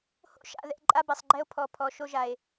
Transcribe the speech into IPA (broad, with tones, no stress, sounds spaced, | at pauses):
h o̰˦ ʃ a̰˨ ð ɛ̰˨ ǃʼ a˦ b ɛ˨ sˤ ɡ͡ǃ ɛ˦ o̯ pʰ ɔ˨ pʰ ɔ˨ ʃ o˦ ʒ a˨ e̯